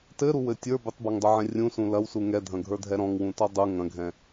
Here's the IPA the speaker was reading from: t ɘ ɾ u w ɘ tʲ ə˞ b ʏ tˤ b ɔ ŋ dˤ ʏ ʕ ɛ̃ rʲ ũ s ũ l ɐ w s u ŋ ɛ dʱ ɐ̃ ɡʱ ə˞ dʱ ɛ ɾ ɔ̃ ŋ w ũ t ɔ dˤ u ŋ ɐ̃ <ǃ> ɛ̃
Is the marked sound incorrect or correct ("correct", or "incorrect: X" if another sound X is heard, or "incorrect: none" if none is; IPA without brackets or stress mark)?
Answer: incorrect: ɡʱ